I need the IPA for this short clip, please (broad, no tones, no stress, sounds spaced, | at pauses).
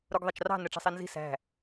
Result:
ɾ u ɡ ðˤ ɑ t͡ʃ r ɑ̤ n ɛ ʈ͡ʂ i̤ sˤ i n z i̤ s æ̤